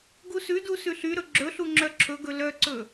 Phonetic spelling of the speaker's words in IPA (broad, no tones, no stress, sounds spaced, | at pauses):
ɡ u s ʉ d u s ʉ ɬ y ɾ ɵ ɡ͡ǁ ɵ ɬ u ŋ͡ǁ œ ǁʰ ɵ ɡ ɵ l œ ǀ ɵ